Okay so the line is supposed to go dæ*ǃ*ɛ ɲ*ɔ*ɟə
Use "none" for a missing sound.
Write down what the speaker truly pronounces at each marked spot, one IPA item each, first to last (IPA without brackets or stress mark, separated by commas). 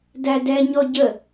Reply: d, ɔ